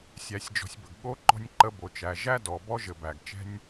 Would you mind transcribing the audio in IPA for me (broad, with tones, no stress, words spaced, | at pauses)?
sʲæ˨sʲd͡ʒɔ̤˨sʲ bə˨ɡɠo˦ ǃɔ̤˦nʲǃə˦bo˨t͡ʃæ˨ ʒæ˦ dɔ˨ bɔ˦ʒɘ˨ bæ˨ɡt͡ʃɛ̤˦nʲ